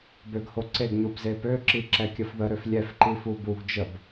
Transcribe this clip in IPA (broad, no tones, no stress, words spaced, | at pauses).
bøɡhoǀeɡɲub zepøǁi ǁɛkʲəfðəɾøf lʲɛfǃi fubuɡd͡ʒəb